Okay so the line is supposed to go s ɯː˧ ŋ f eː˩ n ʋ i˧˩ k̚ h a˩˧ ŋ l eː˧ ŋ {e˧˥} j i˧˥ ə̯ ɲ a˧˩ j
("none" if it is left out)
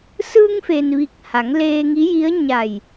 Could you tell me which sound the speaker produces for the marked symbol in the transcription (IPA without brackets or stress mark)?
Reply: i˧˥